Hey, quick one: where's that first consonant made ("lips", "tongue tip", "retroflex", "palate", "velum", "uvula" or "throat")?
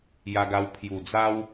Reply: palate